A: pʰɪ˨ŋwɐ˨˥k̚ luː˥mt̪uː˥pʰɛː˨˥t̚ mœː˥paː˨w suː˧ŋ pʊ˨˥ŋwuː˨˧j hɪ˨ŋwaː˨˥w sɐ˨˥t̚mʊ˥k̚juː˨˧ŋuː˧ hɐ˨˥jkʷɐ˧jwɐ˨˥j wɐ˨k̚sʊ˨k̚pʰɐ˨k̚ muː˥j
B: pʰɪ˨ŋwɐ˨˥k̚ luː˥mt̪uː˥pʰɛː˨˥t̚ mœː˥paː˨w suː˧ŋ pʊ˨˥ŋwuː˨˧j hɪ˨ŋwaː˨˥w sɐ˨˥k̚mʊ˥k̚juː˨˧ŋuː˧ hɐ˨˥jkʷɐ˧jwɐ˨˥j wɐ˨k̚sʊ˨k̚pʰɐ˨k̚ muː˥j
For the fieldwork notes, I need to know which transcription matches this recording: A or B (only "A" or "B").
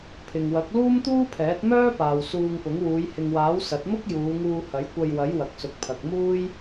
A